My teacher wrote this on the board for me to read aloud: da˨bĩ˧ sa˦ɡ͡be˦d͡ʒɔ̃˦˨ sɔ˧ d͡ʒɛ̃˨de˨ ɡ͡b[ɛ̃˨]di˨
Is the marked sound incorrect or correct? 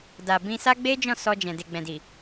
correct